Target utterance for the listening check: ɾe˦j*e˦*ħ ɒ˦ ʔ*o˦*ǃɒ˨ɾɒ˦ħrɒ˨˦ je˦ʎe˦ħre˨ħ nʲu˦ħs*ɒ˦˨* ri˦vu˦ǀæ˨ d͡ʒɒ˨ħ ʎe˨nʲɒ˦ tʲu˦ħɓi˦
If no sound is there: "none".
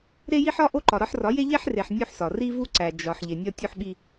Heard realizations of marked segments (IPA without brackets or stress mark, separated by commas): i˦, o˦, ɒ˨